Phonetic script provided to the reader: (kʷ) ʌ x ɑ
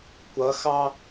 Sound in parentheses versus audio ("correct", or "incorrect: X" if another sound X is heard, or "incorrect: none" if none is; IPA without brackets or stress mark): correct